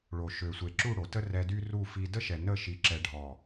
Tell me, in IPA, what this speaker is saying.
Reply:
ɭ o˨ ʃ ø˨ sʷ e˨ ǁ u˦˨ ɽ o˨ t ə˦ r ɛ˧ d y˦ r u˦˨ f i˧ d ə˦ ʃ ɛ˨ n ə˦˨ ʃ i˧ ǁ ɛ˧ ɖʱ ɔ˨

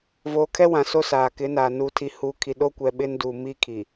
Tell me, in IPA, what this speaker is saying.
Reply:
v oː˨ kʰ ɛ˦ w ã˨ s o˦ s aː˨ k ɪ˨˦ n aː˨ n uː˨ tʰ i˨ h uː˨ kʰ i˨ ɗ o˦ kʷ ɛ˨ ɓ ɪ˦ n d u˨ m i˦ kʰ i˨

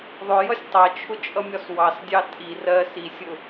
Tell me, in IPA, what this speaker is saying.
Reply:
ðˤ ʊ j ʌ sʲ tˤ ɜ t͡ʃʰ ʊ t͡ʃʼ ʌ mʲ ɒ s w ɑ s dʲ ɑ tʼ i r ɜ s i sʲ ʊ

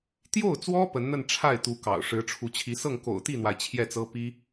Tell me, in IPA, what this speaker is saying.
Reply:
t̪ j o˥˩ ʊ̯ t͡s w ɔ˥ p ə˧˥ n n̪ ə˥˧ n ʈ͡ʂʰ a˥˩ ɪ̯ t̪ u˧˥ k ɑ̰˨˩ ʊ̯ ʂ ɻ̩˧˥ ʈ͡ʂʰ u˧˥ t͡ɕʰ i˧˥ s ɤ˥˩ ŋ k o̰˨˩ ʊ̯ t̪ i˥˩ n̪ w a˩ ɪ̯ t͡ɕʰ j ɛ˥˩ t͡s ɤ˥ p i˥

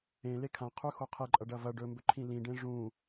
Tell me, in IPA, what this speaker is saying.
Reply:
ẽ l e kʰ ã qʰ ʉ x o qʰ e ǃʼ ɐ ɖ ɐ v ɐ ɖ ɵ m b ɵ ǃʰ ĩ l ĩ ɖ ẽ ʐ ũ

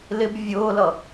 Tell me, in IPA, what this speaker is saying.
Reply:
l ɪ b vʲ ʊː l ʌ

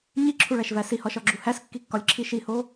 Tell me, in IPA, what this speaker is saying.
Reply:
ɲ i ǁʰ u ɭ æ ʃ v æ s i h ɒ ʃ ɒ ɡ͡ǁ u h æ s kː i kː ɒ lʲ ǁʰ i ʃ i h o

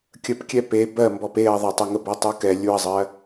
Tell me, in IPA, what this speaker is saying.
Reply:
kʲ ə p kʲ ɛ p e b ɜ m b ɔ p e ɐ̯ ðˤ ə tˤ e ŋ ə b ɛ tˤ u k ɛ lʲ u ɐ̯ zˤ ɜ

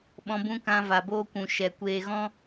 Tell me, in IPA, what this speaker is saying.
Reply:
ɓ ɔ̃˧ b ũ˧ k ã˧ v a˨ b oː˧ kʷ ũ˨ ʃ ɛ˨ kʷ eː˨ ɣ ɔ̃˧

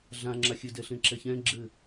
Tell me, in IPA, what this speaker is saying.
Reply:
ɮ ã ŋ͡ǁ a xʲ ɘ d ɛ ɬ ẽ ǁ ɛ ç ɛ̃ ɡ͡ǁ ɘ

